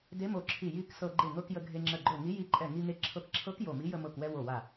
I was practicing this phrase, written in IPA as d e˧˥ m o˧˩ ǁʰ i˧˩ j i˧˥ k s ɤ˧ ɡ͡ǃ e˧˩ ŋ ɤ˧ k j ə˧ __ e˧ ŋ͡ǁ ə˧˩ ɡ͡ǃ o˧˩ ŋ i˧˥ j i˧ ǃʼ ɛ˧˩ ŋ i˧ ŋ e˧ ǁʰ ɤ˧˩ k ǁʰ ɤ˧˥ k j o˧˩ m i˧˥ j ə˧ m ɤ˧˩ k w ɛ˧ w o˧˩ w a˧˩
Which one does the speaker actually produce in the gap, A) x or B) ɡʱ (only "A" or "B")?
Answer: B